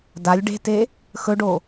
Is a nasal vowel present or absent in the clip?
absent